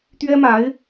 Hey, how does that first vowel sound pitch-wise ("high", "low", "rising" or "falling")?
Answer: high